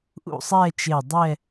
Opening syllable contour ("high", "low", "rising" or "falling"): falling